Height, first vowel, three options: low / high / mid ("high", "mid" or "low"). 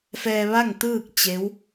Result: mid